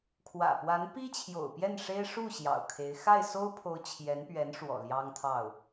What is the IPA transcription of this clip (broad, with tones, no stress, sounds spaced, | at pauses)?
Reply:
kʰ w ä̰˨˩ p w a˧˥ n p i˥ t͡ɕʰ j o̰˨˩ ʊ̯ p j ɛ˥˩ n ʂ e˥ ɪ̯ ʂ u˥˩ ɕ j ɑ̰˨˩ ʊ̯ kʰ e˧˥ ɪ̯ x a˥˩ ɪ̯ s o˥ ʊ̯ pʰ o˧˥ ʊ̯ t͡ɕʰ j ɛ˧˥ n p ɥ ɛ˧˥ n ʂ w ɔ̰˨˩ l j ɑ˥ ŋ t̪ʰ ɑ˥˩ ʊ̯